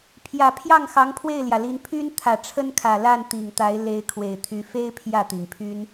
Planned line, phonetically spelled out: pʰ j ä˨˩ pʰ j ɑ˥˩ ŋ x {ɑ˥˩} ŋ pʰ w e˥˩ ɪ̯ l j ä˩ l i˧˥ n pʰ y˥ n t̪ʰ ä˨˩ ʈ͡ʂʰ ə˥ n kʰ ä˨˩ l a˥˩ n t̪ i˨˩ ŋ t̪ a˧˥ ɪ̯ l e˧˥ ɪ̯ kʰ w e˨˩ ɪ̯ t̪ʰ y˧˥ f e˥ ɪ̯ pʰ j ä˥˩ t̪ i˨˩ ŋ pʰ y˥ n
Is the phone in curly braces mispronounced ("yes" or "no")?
yes